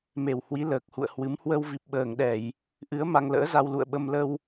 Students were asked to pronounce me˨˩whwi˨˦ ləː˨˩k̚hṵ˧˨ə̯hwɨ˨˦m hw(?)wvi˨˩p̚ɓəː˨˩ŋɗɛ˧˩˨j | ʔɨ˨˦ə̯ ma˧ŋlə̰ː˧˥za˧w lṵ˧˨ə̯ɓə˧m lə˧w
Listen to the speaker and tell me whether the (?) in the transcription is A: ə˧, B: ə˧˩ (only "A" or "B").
A